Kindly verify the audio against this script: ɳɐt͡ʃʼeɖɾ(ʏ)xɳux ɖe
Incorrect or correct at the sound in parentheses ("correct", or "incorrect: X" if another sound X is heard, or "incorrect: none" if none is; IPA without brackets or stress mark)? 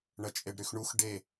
incorrect: y